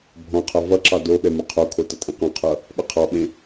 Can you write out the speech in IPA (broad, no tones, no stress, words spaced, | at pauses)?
bʱɔ̃qʰʌ vʌǁɑ do ɓɛmʌqʰokʰo tʌtʼẽqɔ̃qʰʌ | ɓʌqʰɑɓẽ